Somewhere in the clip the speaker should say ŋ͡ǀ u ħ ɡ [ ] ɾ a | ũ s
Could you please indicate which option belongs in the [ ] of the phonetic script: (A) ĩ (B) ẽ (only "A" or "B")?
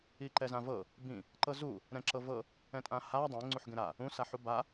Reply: B